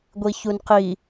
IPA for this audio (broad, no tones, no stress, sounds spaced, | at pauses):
ɡʷ i ç u n q i